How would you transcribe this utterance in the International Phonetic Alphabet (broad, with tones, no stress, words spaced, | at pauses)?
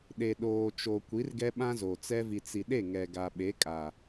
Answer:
ɗe˨ɗoː˨t͡ʃo˨ kʷi˨˦rɡɛ˦ ɓã˦zo˨t͡sɛ˦ vi˨t͡si˨ɗe˦˨ ŋɛ˨ɡa˨ɓe˨˦ kʼa˨